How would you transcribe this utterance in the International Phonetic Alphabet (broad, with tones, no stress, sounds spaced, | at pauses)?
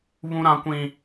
β ũ˦ ɾ ã˦ kʷ ĩ˦